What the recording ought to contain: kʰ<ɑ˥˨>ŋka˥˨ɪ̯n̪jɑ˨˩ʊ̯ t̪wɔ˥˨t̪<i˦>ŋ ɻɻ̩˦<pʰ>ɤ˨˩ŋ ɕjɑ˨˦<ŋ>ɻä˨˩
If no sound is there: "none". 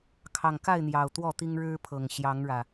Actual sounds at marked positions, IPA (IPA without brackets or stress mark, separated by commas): ɑ˨˩, i˦, pʰ, ŋ